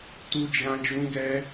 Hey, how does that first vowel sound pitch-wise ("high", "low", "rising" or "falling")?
high